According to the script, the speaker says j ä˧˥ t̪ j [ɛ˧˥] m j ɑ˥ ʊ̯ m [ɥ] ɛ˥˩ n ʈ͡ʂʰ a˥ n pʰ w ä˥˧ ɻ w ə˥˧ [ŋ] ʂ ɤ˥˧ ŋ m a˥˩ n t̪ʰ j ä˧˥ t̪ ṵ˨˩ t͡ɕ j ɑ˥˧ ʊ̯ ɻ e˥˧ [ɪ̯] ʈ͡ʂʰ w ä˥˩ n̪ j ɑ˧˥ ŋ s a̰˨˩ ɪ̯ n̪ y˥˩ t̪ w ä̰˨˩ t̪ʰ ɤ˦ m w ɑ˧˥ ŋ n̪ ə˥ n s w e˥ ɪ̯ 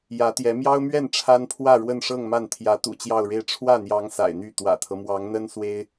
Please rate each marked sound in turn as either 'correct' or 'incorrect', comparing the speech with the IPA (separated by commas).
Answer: correct, correct, incorrect, correct